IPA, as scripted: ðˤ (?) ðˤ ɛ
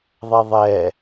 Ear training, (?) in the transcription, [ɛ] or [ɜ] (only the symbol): ɛ